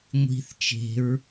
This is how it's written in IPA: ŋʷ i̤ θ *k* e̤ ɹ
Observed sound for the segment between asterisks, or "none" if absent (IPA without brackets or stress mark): t͡ʃ